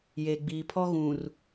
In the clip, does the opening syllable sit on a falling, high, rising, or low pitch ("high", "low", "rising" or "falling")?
low